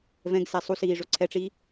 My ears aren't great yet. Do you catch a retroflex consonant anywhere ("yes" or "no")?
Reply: yes